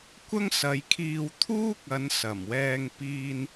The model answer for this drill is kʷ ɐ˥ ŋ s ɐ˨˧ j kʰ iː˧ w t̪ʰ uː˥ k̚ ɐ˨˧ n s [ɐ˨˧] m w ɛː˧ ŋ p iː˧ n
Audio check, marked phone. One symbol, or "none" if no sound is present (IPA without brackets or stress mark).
ɐ˨˩